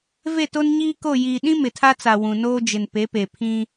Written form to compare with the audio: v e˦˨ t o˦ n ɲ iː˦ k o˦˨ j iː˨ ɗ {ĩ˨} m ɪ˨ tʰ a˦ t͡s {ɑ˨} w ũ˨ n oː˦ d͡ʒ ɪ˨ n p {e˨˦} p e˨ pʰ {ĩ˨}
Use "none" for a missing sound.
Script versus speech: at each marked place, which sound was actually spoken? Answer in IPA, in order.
ĩ˦, a˨, e˨˦, ĩ˦

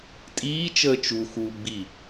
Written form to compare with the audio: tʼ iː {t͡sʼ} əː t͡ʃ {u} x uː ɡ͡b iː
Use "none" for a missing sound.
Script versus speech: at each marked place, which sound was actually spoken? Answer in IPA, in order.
t͡ʃ, u

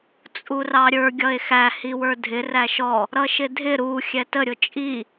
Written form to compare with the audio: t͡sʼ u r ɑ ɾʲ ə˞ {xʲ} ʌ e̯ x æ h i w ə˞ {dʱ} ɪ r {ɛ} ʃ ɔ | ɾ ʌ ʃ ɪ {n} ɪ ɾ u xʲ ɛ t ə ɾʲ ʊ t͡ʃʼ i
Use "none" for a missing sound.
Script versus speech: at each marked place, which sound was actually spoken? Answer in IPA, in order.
ɡʲ, dʱ, æ, dʱ

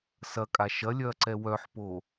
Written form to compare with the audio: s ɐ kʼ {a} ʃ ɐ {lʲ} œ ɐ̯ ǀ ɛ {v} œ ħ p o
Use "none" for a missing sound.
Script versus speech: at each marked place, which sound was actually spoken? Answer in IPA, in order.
a, lʲ, w

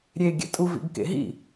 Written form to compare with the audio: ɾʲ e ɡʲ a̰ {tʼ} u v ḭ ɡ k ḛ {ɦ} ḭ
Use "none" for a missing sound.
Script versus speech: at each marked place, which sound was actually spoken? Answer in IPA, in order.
tʼ, ɦ

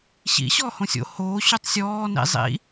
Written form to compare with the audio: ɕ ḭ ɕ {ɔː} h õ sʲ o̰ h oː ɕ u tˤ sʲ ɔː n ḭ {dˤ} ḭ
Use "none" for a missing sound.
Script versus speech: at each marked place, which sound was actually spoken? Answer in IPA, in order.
ɔː, zˤ

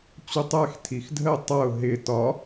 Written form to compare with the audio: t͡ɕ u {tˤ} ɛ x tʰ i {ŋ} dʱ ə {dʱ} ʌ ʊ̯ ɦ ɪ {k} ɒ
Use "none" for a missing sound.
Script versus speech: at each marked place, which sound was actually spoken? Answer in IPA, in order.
tˤ, x, tˤ, t

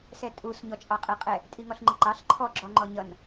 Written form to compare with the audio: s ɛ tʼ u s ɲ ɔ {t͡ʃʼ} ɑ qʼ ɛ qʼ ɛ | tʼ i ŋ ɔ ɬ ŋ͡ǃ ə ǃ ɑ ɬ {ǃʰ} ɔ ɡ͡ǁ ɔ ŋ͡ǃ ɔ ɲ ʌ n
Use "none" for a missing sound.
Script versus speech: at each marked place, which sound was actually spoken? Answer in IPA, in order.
t͡ʃʼ, ǃʰ

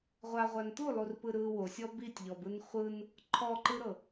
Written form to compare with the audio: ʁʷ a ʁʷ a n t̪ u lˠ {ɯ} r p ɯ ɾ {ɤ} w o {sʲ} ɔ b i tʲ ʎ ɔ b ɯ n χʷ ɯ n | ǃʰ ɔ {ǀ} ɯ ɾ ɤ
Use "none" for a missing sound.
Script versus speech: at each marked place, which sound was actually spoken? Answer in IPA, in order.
u, ɯ, sʲ, ǃ

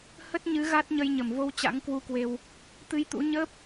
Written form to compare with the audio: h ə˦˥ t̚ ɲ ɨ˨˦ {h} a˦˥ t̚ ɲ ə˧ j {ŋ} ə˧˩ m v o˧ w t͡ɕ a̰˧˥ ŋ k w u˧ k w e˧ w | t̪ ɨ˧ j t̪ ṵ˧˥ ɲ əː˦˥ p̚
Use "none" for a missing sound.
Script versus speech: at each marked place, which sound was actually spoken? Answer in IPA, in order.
ɣ, ɲ

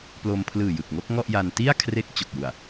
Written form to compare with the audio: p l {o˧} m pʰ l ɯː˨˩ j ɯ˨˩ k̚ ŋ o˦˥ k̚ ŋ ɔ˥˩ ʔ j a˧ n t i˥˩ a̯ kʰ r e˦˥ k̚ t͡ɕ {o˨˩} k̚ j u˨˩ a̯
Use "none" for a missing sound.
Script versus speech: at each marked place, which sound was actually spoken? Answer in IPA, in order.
o˧, o˨˩

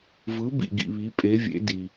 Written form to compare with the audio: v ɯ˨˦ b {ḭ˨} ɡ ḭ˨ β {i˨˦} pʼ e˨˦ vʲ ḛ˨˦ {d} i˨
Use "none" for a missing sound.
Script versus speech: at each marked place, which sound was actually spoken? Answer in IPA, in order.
ḭ˨, i˨˦, d

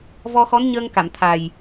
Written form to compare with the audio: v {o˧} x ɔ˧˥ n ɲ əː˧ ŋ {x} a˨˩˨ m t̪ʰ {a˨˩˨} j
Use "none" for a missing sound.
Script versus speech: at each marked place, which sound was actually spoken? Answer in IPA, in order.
ɔ˧, k, a˨˩

